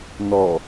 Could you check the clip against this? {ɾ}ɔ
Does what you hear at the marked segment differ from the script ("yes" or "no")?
yes